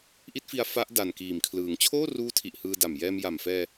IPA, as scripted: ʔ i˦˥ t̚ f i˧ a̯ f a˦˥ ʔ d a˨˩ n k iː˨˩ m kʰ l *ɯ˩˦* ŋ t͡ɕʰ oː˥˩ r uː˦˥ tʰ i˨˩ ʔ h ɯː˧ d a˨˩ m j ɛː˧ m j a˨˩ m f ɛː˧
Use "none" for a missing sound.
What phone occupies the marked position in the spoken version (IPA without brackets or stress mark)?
ɯː˩˦